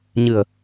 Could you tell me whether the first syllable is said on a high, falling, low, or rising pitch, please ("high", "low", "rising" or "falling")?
low